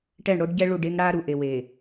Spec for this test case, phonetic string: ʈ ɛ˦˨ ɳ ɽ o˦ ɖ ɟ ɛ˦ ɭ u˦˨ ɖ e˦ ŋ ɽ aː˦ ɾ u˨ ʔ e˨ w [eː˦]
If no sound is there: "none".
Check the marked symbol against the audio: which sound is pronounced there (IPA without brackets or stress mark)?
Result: eː˨